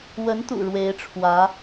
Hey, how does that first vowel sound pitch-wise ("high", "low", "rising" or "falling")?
rising